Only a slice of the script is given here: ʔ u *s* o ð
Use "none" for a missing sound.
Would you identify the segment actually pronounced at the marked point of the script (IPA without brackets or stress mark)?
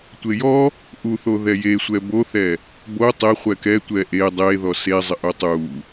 θ